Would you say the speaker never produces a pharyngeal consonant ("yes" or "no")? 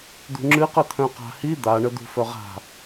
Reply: yes